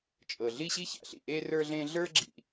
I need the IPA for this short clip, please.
t͡ʃʼɤ˩ɮi˥ɕi˥ça̰˩ ɬḭ˩ʔe˥ rə˞˥ɮẽ˥ ɮə˞˥ɡ͡ǁḭ˩

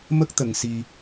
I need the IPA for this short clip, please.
mə˦˥k̚ t̪ə˧ŋ si˧

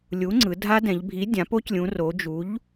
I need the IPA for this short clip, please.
lʲu˨˥ŋ͡ǀɯ˩˧ dʱa˦˥dɛ̃˩˧ʎbʱi˨˥ dʲã˩˧po˦˥clʲũ˩˧ro˩˧ d͡ʒu˨˥ʎ

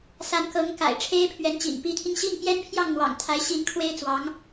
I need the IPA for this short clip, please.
sa˧˥nkɤ˧˥ŋ ka̰˨˩ɪ̯ ʈ͡ʂʰe˥ɪ̯pʰɥɛ˧˥nt͡ɕḭ˨˩n pi˧˥t̪ʰi˧ŋɕi˥˩ŋ pjɛ˥npʰjɑ˥˩ŋn̪wɑ̰˨˩ŋ t̪ʰa˧˥ɪ̯ɕi˧˥nkʰwe˥ɪ̯t͡swɑ˧˥ŋ

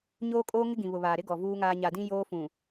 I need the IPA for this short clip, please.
ɲoː˦kʼoː˦ŋɪ˦ ɡĩ˨βʊ˨βaː˨ ɾɪ˦ ɡɔ˨vuː˦ŋaː˦ ɲa˨dĩ˦ joː˦ fũ˨

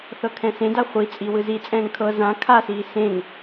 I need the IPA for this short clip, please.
θɤkʰɛ̃sẽda χʷit͡sʼi wɯzit͡sʼɛ̃ːŋ kʰɤ zã kʰasiː sẽŋ

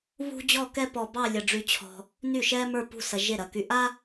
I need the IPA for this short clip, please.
βṳ˥d͡ʑɔ˥˧kɛ˥ pɔ˧bɑ˥˧ lʲɐ˧ ɖ͡ʐy˧t͡ɕʰɔ̤˧ | ny˥˩ʃɛ˥mə˞˥˧ pṳ˥˩sɐ˧ʒe˥˩ɾɐ˧ ky˧ ʔa˥

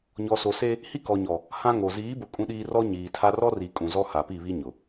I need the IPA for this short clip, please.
ɲɔ˨so˨ se˦ | hi˦kɔ˨ɲɔ˨ | hã˦ŋo˨ ziː˨˦bʊ˨ kʼũ˦ɗiː˦ rɔ˦ɲiː˨tʰa˦ rɔ˦ri˨ kʼũ˨zɔ˦ha˨pi˦˨ βi˦ɲʊ˨

